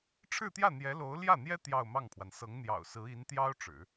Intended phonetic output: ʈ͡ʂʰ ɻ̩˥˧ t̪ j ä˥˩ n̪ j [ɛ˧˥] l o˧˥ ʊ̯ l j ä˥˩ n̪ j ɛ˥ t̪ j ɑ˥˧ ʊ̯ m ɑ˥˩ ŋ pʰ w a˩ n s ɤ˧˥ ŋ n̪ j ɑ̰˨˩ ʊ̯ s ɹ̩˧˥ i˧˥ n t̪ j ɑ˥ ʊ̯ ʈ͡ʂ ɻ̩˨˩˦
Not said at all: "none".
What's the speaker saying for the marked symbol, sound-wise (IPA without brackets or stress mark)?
ɛ˧˥